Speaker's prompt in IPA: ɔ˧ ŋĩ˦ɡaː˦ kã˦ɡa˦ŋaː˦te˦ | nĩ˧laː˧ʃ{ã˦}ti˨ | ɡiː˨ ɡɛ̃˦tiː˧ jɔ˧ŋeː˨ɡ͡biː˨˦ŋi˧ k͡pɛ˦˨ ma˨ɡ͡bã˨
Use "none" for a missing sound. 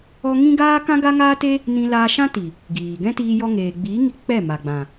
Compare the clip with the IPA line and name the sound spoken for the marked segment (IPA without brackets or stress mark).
ã˦